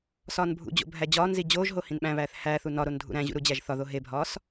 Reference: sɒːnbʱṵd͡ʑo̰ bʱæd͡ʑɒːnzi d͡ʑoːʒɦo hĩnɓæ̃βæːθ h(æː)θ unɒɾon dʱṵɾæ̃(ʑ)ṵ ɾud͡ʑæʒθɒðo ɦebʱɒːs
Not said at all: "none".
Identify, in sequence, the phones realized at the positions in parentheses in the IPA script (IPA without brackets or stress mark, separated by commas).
æː, ʑ